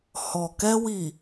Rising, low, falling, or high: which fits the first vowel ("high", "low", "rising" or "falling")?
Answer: low